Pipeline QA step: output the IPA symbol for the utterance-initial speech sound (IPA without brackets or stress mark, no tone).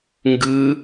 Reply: ŋ